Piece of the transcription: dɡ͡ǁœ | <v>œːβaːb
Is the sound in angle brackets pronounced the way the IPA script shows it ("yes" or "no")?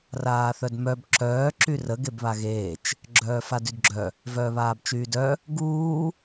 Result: yes